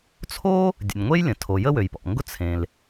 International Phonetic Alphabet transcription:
t͡sʰ o˥ | dʲ ə̰˩ nʲ ŋʷ e˥ j lʲ ə̃˩ tʰ o˩ j ə˥ w ø˩ j p ɔ̰˩ ŋ ɡ ʊ˥ t͡sʰ ẽ˩ l

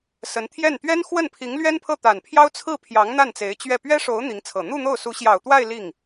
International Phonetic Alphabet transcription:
s ə˧˥ n t̪ʰ j ɛ˥˩ n t̪ ɥ ɛ˥ n x w ə˥˩ n pʰ i˧˥ ŋ l ɥ ɛ˥ n pʰ ɤ˥˩ t̪ a˨˩ n pʰ j ɑ˥ ʊ̯ t͡sʰ ɹ̩˥˩ pʰ j ɑ˧˥ ŋ n̪ a˥˩ n t͡s e˧˥ ɪ̯ t͡ɕ ɥ ɛ˥˩ p ɥ ɛ˥ ʂ o˧˥ ʊ̯ n̪ i˧˥ ŋ t͡sʰ ɤ˨˩ n̪ u˥˧ n̪ o˥˩ ʊ̯ s u˧˥ ɕ j ɑ˨˩ ʊ̯ t̪ w a˥˧ ɪ̯ l i˥˩ ŋ

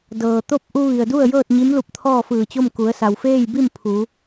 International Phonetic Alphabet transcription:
d ɤː˩ t̪ o˥˨ p̚ ʔ u˧ ʋ i˩ ə̯ d u˥˨ ə̯ j ɤː˥˨ t̚ ɲ i˧˥ m l u˧ p̚ t̪ʰ ɔː˥˨ f ɯː˧˩ t͡ɕ o˥˨ m k u˩˧ ə̯ s a˩ w f eː˥˨ j b i˥˨ m pʰ u˩˧

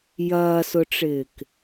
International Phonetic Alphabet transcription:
j ɐː s ʊ ʈ͡ʂ ɪː k

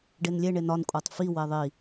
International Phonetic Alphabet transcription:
ɖ e n lʲ e ɳ e n ɒ n kʷʼ æ tˤ f i w e ðˤ i

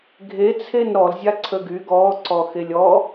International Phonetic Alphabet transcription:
ɡʱ e t͡sʰ e n ɾ ɔ l zʲ a ǀʰ ə ɡ y ɡ ɔ ǀ ɔ x e lʲ ɔ

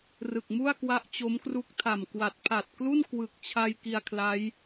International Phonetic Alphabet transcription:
r ɯ˨˩ k̚ m u˥˩ a̯ k w a˦˥ ʔ t͡ɕ o˦˥ m k r u˦˥ k̚ tʰ a˨˩ m k w a˨˩ t̚ pʰ a˨˩ t̚ k l u˥˩ n k w ɯ˨˩ k̚ t͡ɕʰ a˧ j k i˧ a̯ kʰ l a˦˥ j

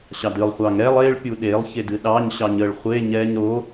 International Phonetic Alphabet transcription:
ɕ ɑ d ɨ lˠ χʷ ɑ ŋ ɾ ɛ lˠ e ɭ pʲ u ɗ e lˠ ç e d ɨ ɗ ɑ ɲ ɕ ɑ ɲ ə ɭ χʷ e ɲ ɛ ɲ ɾ o

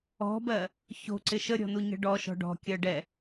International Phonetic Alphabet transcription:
ɔ̤ b ɜ | ç o̤ ǀ ɪ ʃ ə ɾʲ ɔ̤ n u ɲ ə̤ ɖ ɔ ʃ ɔ̤ ɖ ɔ̤ kʲ ɜ ɖ ɛ

